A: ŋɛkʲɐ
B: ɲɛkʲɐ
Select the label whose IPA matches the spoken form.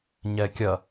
B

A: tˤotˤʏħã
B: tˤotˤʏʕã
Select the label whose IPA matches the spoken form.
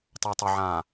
B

